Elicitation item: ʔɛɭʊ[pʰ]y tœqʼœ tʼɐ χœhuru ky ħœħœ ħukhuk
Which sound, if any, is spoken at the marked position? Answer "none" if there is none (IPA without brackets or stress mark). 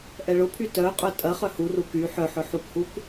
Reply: pʰ